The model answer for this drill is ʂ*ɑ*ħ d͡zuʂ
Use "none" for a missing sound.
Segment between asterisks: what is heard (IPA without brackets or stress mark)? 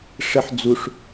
ə